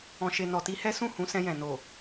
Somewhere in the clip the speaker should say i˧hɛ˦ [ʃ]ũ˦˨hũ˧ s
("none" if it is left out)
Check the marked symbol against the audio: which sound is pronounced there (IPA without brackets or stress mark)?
s